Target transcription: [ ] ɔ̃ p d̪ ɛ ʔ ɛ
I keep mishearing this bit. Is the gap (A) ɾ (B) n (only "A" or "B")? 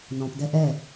B